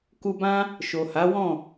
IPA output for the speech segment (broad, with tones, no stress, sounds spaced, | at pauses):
k u˧ b ã˦ | ʃ o˨ h a˨˦ w ɔ̃˦˨